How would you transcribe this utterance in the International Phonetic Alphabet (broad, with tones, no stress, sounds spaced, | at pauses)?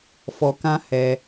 f ɔ˧ k ã˦ h ɛ˧